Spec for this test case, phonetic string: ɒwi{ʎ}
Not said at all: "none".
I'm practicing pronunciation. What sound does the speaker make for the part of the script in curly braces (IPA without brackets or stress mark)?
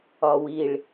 ɭ